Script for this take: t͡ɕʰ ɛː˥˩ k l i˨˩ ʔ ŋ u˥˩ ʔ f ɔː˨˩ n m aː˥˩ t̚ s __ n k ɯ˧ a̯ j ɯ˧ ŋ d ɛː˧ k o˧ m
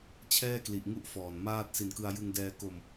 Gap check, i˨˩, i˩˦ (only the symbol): i˨˩